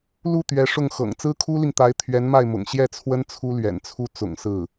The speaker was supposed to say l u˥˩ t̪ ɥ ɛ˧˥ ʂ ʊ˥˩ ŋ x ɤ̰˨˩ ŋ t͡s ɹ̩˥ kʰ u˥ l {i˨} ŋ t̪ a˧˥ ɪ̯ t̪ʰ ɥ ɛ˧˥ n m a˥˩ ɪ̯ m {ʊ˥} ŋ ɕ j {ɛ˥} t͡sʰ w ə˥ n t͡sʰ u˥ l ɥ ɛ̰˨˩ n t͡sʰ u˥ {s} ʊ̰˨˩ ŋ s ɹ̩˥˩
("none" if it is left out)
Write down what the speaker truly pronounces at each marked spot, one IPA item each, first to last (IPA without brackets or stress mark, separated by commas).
i˨, ʊ̰˨˩, ɛ˥˩, t͡s